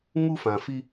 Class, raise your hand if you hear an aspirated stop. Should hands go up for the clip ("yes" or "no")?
no